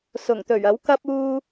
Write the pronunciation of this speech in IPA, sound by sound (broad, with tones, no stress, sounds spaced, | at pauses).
s ʊ˨˩ ŋ t̪ ɵ˨˩ ɥ ɐ˨˥ w k ɐ˥ p̚ uː˥